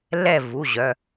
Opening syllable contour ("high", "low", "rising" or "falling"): falling